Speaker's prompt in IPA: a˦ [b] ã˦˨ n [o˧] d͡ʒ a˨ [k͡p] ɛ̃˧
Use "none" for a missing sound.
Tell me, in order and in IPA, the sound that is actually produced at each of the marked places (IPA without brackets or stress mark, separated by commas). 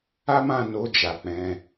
m, o˧, k͡p